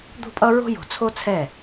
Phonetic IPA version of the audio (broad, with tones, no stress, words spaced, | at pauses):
d̪o̤˦pʼʌ˦ɹo̤˦jo̤˨ t͡sʰo˦t͡sʰɛ˦˨